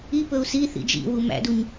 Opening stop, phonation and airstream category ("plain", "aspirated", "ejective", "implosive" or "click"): plain